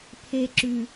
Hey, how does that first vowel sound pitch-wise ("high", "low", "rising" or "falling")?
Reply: low